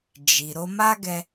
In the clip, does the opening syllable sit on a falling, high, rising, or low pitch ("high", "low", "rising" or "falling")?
low